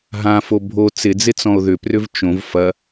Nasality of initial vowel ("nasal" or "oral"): nasal